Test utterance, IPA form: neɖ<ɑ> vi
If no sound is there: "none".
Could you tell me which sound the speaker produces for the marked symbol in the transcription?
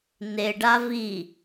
a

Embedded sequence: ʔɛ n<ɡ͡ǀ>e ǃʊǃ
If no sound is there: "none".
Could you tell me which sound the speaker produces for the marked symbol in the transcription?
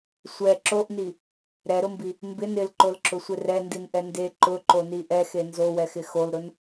d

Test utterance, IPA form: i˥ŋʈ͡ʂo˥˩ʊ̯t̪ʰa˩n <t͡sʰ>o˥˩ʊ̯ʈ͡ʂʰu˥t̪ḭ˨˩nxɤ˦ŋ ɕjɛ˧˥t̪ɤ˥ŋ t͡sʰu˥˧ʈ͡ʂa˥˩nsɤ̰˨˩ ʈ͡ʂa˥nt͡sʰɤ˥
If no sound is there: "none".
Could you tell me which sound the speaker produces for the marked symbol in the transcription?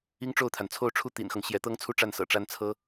t͡sʰ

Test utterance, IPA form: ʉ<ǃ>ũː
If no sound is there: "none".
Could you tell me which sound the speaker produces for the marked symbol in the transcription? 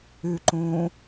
ǃ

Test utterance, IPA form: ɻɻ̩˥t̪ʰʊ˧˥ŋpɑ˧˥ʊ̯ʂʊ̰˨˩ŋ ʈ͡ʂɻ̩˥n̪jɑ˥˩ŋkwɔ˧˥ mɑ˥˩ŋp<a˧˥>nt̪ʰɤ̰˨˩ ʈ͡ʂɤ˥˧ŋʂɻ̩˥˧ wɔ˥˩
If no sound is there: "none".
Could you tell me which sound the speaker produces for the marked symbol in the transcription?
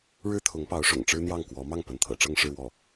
ə˧˥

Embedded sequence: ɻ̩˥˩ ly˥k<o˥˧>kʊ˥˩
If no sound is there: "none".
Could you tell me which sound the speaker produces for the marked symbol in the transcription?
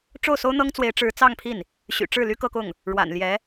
ɤ˥˧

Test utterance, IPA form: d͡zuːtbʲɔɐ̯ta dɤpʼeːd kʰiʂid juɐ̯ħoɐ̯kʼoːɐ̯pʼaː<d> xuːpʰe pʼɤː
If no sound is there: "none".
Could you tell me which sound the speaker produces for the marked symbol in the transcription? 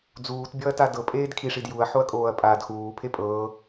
d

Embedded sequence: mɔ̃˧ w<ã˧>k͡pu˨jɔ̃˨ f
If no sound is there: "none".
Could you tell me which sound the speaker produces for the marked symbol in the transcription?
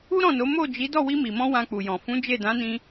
ã˧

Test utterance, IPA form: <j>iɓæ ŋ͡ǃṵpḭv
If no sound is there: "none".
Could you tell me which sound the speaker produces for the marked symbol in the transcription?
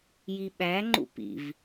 j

